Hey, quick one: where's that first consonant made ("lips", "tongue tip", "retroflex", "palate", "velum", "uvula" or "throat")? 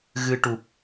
velum